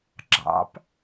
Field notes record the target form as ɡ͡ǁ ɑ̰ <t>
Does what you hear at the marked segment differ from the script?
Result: yes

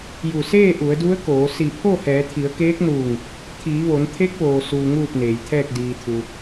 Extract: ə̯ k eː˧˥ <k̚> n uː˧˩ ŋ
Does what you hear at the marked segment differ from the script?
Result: no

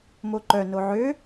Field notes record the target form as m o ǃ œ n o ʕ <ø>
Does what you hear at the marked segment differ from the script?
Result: no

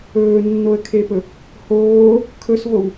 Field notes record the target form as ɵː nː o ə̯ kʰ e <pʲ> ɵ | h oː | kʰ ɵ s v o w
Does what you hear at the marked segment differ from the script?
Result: yes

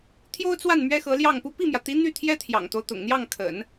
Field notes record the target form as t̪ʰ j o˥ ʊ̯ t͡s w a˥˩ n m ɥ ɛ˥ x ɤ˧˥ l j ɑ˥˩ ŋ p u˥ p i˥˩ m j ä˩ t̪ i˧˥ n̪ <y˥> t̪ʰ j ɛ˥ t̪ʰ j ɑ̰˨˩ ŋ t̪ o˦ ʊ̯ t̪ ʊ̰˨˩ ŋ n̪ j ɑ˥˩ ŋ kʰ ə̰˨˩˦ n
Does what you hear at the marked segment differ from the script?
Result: yes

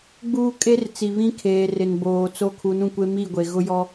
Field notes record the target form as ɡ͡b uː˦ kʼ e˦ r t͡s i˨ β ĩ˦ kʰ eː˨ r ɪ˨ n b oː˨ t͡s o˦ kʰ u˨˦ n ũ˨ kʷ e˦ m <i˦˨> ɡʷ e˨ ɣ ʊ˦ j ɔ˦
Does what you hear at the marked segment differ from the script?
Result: no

